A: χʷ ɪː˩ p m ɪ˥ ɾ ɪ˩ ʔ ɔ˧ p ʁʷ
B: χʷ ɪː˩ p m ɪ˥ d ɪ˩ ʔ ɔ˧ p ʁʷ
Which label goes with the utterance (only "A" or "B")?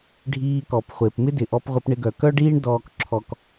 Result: B